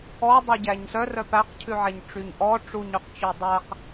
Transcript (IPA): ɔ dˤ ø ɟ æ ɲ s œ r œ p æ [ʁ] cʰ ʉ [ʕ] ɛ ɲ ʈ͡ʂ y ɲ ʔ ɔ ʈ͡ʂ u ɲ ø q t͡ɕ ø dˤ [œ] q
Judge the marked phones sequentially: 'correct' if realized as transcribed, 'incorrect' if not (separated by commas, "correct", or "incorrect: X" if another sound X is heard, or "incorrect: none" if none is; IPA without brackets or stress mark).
incorrect: q, correct, incorrect: æ